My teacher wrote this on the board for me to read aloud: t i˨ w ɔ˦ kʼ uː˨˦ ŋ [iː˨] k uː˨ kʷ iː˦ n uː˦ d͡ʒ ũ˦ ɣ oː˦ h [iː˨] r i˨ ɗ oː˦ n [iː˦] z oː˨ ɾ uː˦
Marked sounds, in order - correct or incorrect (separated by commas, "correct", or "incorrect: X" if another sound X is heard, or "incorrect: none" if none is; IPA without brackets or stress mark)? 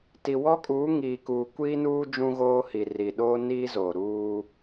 correct, incorrect: i˨, correct